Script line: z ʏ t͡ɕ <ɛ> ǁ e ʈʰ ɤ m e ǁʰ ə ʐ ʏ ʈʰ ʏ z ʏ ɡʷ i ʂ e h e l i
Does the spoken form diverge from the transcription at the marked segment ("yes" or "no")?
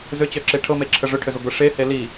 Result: yes